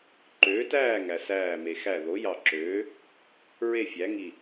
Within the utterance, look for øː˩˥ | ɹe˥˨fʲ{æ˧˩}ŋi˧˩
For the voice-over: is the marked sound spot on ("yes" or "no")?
no